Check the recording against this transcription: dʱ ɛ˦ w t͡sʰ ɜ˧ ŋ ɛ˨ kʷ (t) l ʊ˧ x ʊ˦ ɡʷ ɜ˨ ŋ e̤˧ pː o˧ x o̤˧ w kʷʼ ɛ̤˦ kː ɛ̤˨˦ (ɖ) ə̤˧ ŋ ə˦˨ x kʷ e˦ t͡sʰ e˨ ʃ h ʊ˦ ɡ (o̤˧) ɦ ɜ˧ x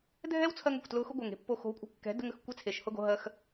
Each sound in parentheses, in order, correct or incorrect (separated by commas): correct, incorrect, correct